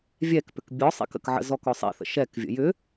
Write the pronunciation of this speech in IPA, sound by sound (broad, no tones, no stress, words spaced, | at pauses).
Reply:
vʲɛkpʏk bʲɔsˤḭk ə̰kʕə̰ zɔkɔsˤḭθə̰ ʃɛkvʲə̰ jʏ